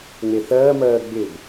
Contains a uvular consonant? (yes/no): no